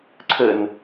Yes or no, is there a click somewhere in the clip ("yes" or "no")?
yes